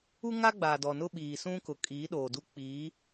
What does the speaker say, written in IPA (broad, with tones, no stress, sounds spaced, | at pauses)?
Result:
u˦ ŋ a˦ ɡ͡b aː˨ d ɔ˨ n ʊ˦ ɓ iː˨ s ũ˦ k ʊ˨ kʼ iː˨˦ ɗ oː˨ d u˦ k͡p iː˨˦